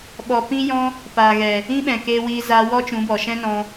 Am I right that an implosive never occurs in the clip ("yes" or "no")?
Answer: no